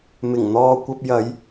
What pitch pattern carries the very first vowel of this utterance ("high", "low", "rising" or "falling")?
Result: low